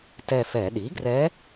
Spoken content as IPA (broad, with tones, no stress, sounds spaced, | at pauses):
t ɛ˦˨ f ɛ˧˩˧ ɗ i˩˥ ɡ r ɛ˧˥